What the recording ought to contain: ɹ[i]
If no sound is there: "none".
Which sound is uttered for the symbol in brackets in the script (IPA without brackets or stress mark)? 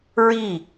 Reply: i